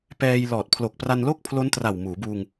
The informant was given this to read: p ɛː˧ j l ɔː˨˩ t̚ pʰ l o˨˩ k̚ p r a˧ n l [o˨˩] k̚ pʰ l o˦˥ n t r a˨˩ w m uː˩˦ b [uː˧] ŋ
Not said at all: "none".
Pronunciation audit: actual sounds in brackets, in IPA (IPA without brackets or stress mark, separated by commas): o˥˩, uː˧